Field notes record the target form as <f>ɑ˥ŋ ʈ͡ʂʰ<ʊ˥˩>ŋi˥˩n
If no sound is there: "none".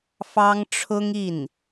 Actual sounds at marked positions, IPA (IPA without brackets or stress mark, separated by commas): f, ʊ˥